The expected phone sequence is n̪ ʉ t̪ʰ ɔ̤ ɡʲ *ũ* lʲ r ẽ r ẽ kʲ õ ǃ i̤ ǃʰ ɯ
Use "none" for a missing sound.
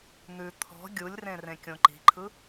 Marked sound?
u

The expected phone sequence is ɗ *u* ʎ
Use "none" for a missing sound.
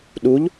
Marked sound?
u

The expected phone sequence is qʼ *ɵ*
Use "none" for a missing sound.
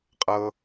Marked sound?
ɤ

